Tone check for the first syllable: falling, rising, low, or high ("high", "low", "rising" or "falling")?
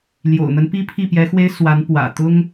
low